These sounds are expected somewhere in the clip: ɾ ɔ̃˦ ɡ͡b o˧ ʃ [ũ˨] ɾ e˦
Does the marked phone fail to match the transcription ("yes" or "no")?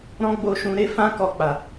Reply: yes